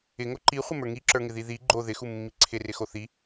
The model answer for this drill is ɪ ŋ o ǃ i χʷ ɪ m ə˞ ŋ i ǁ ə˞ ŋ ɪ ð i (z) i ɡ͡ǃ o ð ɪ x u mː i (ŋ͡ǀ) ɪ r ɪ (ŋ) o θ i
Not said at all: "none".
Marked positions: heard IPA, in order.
ð, ǀʰ, x

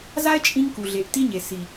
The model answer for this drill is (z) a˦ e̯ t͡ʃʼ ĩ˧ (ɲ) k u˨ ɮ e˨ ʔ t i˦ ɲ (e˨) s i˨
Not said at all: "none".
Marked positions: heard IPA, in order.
z, ŋ, e˨

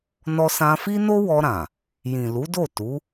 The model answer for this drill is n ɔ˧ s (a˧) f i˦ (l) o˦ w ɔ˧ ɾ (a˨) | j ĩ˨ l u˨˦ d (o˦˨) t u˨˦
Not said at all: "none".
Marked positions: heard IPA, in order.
ã˧, n, ã˨, o˦˨

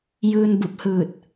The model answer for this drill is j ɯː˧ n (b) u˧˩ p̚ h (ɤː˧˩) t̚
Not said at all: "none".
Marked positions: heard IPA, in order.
b, ɯː˧˩

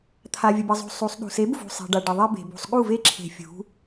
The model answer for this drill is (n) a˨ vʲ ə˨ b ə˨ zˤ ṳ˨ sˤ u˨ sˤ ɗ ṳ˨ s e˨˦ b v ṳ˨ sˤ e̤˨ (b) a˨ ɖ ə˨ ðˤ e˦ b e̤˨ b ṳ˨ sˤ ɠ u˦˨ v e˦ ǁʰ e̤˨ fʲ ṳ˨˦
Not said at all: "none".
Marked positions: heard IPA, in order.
t̪ʰ, ɖ

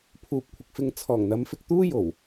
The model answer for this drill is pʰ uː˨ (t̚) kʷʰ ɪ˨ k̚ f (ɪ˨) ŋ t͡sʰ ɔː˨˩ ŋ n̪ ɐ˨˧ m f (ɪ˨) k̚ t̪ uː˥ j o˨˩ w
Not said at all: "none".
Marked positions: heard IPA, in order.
p̚, ɪ˧, ɪ˨

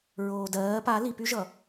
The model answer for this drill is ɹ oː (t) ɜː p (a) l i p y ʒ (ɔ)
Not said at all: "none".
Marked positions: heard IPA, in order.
d, a, ʌ

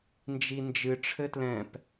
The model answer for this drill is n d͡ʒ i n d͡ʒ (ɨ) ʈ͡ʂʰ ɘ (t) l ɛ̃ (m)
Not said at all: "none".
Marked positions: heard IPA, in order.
ɨ, t, p

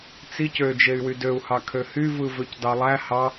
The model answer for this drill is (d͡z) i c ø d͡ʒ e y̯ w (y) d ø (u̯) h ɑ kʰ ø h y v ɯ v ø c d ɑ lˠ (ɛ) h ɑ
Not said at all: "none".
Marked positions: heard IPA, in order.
t͡s, y, u̯, æ

